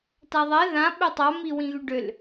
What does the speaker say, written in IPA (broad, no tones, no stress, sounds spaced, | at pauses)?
t a ðˤ ɛ ð ã ɓ ø tˤ a m i w ĩ ɣ y ɖ ø l